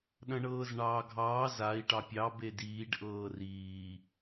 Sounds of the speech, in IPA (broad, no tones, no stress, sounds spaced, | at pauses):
ɗ ɐ̃ ɳ ɤː z ɳ ɑː ɡʱ ɑː z a i̯ ʈ ɑ pʲ ɑ b e d iː ɖ ʔ ɤː r iː